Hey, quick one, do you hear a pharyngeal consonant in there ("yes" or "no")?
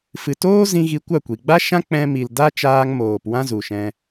no